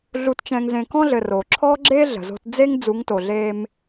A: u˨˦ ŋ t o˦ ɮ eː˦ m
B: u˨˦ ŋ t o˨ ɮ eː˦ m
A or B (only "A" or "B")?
B